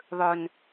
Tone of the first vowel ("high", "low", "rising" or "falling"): low